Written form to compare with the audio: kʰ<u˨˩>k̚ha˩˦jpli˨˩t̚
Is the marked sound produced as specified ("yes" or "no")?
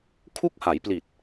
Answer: no